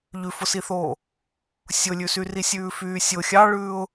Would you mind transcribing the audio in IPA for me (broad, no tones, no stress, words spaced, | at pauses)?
ʎʉfʊsiθoː | sʲʊlʲʉsyri sʲʉːfyːsʲʊ xʲɑɭʉːʊ̯